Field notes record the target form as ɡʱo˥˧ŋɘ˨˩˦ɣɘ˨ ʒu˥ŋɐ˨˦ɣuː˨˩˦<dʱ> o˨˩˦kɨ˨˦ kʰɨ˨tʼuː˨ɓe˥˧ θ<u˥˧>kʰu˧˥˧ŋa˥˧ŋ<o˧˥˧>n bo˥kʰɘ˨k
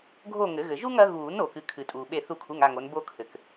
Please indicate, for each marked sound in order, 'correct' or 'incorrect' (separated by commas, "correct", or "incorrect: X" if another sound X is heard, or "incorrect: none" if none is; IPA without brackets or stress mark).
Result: incorrect: n, correct, incorrect: o˨˦